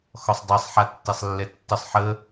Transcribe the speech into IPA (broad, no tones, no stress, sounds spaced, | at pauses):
x ɔ sˤ dˤ i sˤ ħ a tː e sˤ lː ɛ tː ə sˤ ħ ə